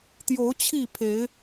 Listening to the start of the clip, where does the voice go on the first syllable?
rising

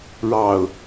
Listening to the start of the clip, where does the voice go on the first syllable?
low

